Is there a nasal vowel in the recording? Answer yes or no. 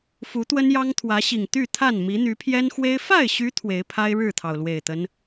no